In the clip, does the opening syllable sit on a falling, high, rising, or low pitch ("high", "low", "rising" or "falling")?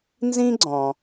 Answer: high